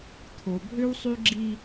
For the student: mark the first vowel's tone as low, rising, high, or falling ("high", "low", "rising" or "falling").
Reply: low